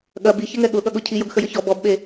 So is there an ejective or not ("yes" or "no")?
no